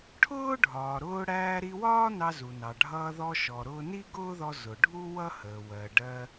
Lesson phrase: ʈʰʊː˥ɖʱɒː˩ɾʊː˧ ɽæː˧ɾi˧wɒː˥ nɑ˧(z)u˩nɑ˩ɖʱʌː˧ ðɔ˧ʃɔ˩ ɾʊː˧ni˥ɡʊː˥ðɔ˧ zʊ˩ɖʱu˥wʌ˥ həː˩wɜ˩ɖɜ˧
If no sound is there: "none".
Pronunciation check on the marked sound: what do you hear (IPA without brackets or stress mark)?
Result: z